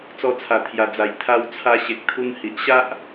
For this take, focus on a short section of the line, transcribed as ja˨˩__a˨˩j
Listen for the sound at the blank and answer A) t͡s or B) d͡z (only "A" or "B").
B